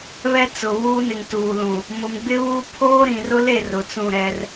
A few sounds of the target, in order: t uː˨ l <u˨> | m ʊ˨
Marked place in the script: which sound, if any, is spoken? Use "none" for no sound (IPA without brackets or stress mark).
ũ˨